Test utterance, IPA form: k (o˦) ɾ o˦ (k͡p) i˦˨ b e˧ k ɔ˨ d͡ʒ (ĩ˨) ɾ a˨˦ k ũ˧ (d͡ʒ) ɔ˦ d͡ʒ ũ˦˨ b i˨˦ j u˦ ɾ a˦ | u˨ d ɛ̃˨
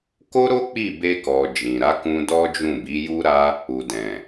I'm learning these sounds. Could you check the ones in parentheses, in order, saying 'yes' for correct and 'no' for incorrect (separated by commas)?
yes, yes, yes, no